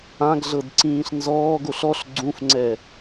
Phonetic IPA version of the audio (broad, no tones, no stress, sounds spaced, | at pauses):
ã ɡ ɮ ɤ d ǀ ĩː ɬ n z ɔː ɡ o ɬ ɔ ɬ ɡ͡ǀ ũ f ŋ͡ǀ ɛ